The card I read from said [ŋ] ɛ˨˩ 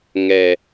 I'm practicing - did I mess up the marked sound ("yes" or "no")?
no